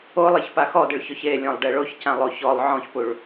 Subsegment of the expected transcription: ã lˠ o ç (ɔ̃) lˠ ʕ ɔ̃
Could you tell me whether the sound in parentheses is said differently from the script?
yes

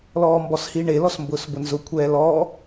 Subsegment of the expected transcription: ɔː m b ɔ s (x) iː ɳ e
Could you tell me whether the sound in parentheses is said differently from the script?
yes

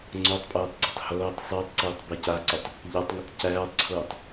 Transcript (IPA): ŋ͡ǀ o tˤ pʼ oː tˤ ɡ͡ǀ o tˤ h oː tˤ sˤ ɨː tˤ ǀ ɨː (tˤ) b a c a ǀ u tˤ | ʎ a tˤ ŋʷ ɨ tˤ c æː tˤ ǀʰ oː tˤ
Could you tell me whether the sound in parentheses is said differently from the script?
no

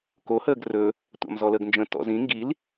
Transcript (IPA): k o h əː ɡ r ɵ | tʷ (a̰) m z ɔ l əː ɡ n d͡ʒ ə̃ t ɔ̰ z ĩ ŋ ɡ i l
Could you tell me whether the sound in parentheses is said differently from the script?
no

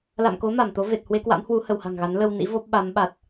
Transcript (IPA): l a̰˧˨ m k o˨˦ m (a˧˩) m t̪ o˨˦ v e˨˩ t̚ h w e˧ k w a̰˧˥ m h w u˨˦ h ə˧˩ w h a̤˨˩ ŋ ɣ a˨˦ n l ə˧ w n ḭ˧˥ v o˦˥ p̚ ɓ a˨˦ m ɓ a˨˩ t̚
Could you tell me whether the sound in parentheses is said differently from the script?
no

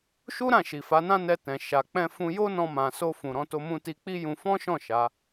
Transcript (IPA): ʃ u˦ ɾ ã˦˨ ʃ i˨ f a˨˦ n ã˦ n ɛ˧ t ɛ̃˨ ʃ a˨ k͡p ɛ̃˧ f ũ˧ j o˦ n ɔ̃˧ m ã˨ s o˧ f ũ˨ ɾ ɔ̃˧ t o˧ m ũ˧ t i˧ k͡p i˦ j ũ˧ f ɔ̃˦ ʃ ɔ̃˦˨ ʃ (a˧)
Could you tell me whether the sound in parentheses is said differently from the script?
yes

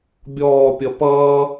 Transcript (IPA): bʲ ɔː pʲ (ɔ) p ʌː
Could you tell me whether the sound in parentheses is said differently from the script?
yes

